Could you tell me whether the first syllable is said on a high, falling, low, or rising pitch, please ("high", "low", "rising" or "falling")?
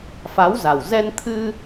rising